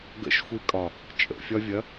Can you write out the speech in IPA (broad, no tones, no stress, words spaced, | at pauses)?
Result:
ɡə̰ʃxʷikʼɒ | t͡ʃʼə̰fʲɒvʲɐ